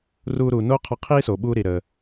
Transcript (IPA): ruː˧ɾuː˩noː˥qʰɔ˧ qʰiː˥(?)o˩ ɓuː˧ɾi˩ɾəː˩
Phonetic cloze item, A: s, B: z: A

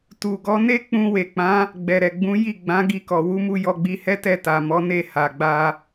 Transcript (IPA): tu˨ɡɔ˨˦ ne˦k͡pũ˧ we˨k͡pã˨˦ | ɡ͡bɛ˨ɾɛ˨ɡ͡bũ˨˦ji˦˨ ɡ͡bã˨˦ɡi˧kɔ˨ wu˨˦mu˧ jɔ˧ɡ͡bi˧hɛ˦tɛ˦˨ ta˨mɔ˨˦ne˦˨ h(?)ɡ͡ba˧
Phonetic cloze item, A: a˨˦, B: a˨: B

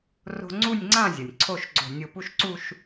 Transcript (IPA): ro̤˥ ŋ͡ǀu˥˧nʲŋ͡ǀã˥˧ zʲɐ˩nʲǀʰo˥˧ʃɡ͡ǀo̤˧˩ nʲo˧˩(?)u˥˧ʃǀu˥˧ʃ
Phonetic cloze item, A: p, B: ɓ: A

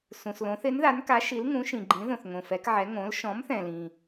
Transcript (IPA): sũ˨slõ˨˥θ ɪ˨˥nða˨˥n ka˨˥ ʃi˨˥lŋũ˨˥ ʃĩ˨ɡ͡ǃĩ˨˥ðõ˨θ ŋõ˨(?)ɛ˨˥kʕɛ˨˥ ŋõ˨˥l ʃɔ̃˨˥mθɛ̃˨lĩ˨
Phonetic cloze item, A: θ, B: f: B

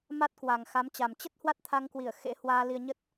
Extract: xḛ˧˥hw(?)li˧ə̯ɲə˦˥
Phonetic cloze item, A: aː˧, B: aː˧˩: A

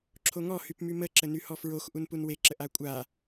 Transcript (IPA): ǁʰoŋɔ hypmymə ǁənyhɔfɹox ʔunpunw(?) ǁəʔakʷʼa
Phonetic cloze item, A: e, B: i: A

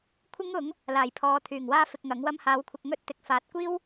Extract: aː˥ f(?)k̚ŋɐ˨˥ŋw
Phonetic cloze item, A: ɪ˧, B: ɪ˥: A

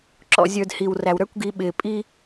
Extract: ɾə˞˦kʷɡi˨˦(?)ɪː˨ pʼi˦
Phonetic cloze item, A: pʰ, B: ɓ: B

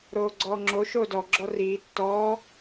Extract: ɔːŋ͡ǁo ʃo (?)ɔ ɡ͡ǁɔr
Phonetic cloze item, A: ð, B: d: B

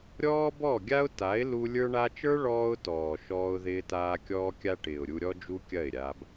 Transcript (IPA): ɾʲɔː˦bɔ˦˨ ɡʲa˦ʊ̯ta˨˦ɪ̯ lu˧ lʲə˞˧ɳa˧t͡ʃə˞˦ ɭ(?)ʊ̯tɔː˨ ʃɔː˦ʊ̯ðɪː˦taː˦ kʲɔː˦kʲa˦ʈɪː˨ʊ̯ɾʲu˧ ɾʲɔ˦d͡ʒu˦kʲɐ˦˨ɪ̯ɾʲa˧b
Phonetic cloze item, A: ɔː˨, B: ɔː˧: B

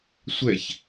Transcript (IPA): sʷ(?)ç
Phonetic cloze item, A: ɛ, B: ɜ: A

